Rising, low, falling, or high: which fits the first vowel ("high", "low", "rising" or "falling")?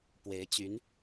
rising